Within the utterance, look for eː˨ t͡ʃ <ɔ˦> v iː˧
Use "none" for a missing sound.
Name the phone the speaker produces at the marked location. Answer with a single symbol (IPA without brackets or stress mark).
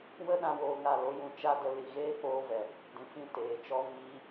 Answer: ɔ˦